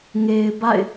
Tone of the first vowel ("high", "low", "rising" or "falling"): low